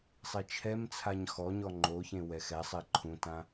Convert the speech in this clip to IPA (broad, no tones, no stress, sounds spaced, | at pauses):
sˤ i t͡ʃʰ ɛ m t͡sʰ a ɲ x ɔ ɲ ɔ ŋ͡ǃ o ç ẽ w ɛ x ɛ sˤ e ǃʰ ũ t ã